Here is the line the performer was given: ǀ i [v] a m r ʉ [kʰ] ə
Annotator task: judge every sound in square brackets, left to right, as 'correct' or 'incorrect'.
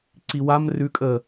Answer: incorrect: w, incorrect: kʼ

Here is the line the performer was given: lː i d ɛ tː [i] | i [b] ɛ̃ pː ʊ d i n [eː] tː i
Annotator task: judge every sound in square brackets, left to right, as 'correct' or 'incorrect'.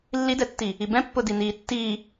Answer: correct, correct, incorrect: iː

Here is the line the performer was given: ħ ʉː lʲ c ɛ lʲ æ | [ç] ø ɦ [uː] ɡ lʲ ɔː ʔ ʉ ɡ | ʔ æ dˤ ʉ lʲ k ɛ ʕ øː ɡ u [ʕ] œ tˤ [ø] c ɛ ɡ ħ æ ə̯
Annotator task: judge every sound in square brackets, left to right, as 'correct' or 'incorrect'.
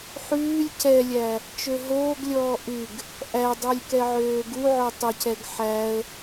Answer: incorrect: t͡ʃ, incorrect: oː, correct, incorrect: y

